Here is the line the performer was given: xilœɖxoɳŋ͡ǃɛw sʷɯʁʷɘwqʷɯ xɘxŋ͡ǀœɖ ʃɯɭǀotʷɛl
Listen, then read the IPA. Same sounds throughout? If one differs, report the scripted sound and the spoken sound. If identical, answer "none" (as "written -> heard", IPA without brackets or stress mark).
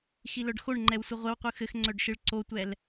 none